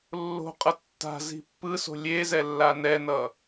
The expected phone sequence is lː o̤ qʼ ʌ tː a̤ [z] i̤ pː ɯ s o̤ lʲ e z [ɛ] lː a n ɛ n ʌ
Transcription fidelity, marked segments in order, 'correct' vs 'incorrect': correct, correct

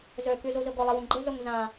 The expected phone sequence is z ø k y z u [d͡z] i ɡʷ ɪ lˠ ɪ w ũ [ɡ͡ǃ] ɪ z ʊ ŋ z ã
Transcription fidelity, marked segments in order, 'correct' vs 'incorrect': incorrect: z, correct

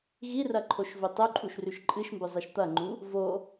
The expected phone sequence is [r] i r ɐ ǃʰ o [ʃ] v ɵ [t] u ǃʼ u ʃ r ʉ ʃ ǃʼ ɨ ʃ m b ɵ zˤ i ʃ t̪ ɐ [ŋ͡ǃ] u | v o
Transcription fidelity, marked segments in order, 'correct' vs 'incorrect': incorrect: ɣ, correct, incorrect: tˤ, correct

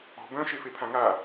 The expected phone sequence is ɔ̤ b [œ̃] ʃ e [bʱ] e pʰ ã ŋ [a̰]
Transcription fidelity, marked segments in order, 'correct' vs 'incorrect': correct, incorrect: f, incorrect: a

